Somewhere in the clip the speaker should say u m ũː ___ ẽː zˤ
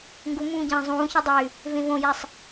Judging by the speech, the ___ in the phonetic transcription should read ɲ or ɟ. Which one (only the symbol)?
ɟ